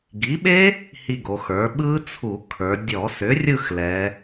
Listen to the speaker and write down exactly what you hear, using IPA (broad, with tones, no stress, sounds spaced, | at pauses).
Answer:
ɡ i˩˥ ɓ e˦˥ | h i˦˨ ɡ o˩˧ x ə˞˩˥ ɓ ɯ˦˥ t͡sʰ u˧˩˧ kʰ ə˞˩˧ dʲ ɔ˧˩˧ s ʏ˩˥ rʲ ɯ˦˨ x l ɛ˩˧